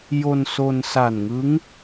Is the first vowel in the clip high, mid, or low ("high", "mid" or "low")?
mid